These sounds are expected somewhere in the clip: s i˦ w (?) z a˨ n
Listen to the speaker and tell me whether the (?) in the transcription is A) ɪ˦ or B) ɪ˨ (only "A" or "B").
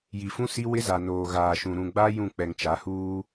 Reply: A